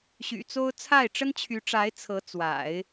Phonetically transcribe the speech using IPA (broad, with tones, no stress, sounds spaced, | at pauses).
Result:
ɕ y̰˨˩ t͡s o˥ ʊ̯ t͡sʰ a˥˩ ɪ̯ ʈ͡ʂ ə˥ n t͡ɕʰ y˧˥ ʈ͡ʂ a˧˥ ɪ̯ t͡sʰ ɤ˧˥ t͡s w a̰˨˩˦ ɪ̯